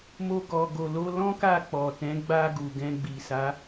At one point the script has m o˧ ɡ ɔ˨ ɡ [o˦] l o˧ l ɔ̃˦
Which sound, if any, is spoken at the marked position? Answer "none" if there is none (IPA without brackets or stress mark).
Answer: o˨